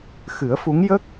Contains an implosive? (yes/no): no